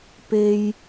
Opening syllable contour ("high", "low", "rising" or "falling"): high